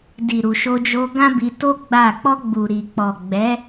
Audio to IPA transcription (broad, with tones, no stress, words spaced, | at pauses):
di˨ɾu˨ ʃo˧d͡ʒo˧ ɡã˦bi˧to˦ ɡ͡ba˦˨ k͡pɔ˧ɡ͡bu˨ɾi˨k͡pɔ˨ ɡ͡bɛ˨˦